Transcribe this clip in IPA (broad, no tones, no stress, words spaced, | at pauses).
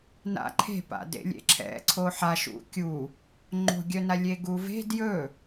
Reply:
na̰ǃʰe̤pa̰ dḛlʲḛǁʰɛ̰ ǀʰoħaʃṵ kʲu | ŋ͡ǃo̤ɡʲœna lʲeɡuve̤ djɵ